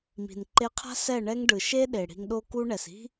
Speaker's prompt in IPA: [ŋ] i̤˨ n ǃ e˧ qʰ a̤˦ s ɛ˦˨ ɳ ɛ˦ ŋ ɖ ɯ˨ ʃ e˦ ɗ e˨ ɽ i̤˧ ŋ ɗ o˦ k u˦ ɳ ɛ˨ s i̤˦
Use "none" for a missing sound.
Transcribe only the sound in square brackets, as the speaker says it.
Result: m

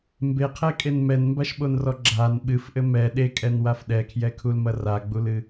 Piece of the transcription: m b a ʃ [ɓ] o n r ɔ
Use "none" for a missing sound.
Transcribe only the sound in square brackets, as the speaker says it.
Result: ɓ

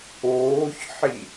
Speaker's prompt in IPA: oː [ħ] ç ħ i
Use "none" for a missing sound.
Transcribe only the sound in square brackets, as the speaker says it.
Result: none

